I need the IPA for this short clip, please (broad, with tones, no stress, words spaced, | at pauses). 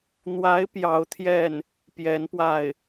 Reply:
n̪wa˧˥ɪ̯ pjɑ˧˥ʊ̯t̪ʰjɛ˥˩n | pjɛ˧˥npwa˥˩ɪ̯